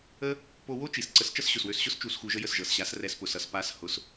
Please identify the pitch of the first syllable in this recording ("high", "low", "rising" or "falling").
high